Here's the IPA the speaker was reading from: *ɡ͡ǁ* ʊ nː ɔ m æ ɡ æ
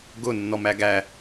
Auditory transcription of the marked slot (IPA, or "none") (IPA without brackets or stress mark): ɡ